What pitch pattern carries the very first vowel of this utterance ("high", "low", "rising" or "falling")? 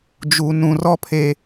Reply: low